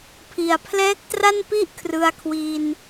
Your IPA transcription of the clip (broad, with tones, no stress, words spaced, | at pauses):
pʰi˨˩a̯ pʰlɛː˦˥k̚tra˥˩npi˥˩ʔ kʰrɯ˧a̯kʰwi˧n